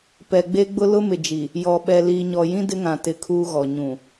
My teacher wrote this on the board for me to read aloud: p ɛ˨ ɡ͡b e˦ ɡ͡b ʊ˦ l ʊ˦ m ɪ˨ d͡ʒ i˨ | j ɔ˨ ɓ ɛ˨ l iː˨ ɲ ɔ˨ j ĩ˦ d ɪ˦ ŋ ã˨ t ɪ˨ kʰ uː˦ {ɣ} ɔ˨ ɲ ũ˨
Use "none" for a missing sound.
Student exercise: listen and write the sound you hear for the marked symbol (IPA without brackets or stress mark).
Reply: ɣ